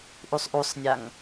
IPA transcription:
ʔ u sˤ ʔ u sˤ nʲ a ŋ

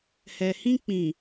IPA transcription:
h ɛ˨ h ĩ˦ k͡p ĩ˨

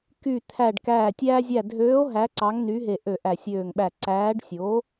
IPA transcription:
k y˧˩ t̪ʰ æ˧˩ ɖ k æː˧˩ tʲ æː˧ zʲ æ˧˩ dʱ øː˨˥ o̯ ɦ æ˨˥ ǀ ɑ˨˥ ŋ n y˨˥ ɦ e˧˩ ʔ ø˧˩ ʔ æ˧˩ sʲ øː˧˩ ŋ ɓ æ˧˩ ǀ æː˨˥ ɖ sʲ o˨˥

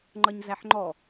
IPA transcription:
ŋ͡ǃ ʌ ɲ z æ ħ ŋ͡ǃ ɔ

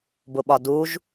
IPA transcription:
b ʊ ɓ ɒ d u ʒ

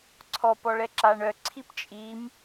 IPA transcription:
ǀʰ ɔ p ɔ ɭ ɛ ǁ a ɳ œ ǀʰ i p t͡ʃʼ i m

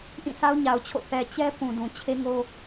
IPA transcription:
ʔ ĩ˦˨ s a˦ ʊ̯ ɲ a˨ ʊ̯ t͡ɕʰ o̰˦˨ θ ɛ˨ t͡ɕ ɛ˦ p ũ˨ d ũ˨ t͡ɕʰ e˦ ŋ o˦

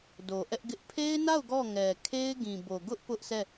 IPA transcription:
d o˨ ʔ ɛ˦ ʔ ɡ ɪ˦ ʔ pʰ e˦ ɪ̯ n a˦˨ ʊ̯ ɡ ɔ˦˨ ŋ ɛ˨ kʰ e˦ ɪ̯ ɡ ĩ˨ b o˨ ɡ ʊ˦ ʔ p ʊ˦ ʔ s ɛ˦˨

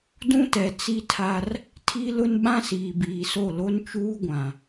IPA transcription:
d ũ˦ t ɛ˨ t͡s i˦ tʰ a˦ r | tʰ i˦ l ʊ˦ n ɓ ã˦ s iː˨ b iː˨ s o˦˨ l o˦ n t͡ʃ uː˦ ɡʷ ã˨

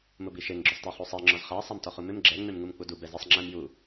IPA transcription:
m ʊ b i ʃ e ŋ ɡ͡ǁ ʊ sˤ t e χ u sˤ ɛ ŋ͡ǁ ɔ z χ a sˤ a m t ɔ χ u m ɪ m ɡ͡ǁ ɛ ŋ͡m e m ŋ u m k͡p u d u b ɛ z ɪ sˤ ŋ͡ǁ ɛ m j u

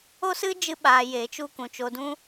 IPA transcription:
o˦ s ɨ˦ d͡ʒ ɨ˧ ɓ aː˨ j e˨˦ t͡ʃ u˦ k ũ˨ t͡ʃ o˧ d ũ˦

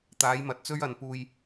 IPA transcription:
t̪ aː˨˥ j m ɐ˨ t̚ t͡s ɵ˥ ɥ ɐ˨ n p uː˧ j

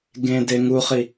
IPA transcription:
ɡ ẽ d e ŋ u χ i

